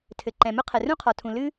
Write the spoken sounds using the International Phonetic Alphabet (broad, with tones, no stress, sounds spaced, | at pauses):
tʰ ɘ˩ ǃ ɛ̃˩ m ʊ˥ qʰ ɛ˩ r ũ˥ qʰ ɒ˩ tʰ ũ˩ l ɨ˥